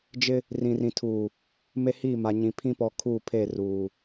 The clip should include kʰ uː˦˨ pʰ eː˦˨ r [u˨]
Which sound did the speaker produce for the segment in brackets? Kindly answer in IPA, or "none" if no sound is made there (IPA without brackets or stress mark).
uː˨